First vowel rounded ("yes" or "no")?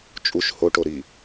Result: yes